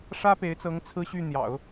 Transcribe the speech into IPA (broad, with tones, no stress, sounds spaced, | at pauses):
ʂ ä˥ p e˧˥ ɪ̯ t͡s ɤ˧˥ ŋ t͡sʰ ɹ̩˥ ɕ y˥˩ n̪ j ɑ̰˨˩˦ ʊ̯